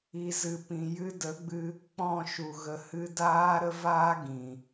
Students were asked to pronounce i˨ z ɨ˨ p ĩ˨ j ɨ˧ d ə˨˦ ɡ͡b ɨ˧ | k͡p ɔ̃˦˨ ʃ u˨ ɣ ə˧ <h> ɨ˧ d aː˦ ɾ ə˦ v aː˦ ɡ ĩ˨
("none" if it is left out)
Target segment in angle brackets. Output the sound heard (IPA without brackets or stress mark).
h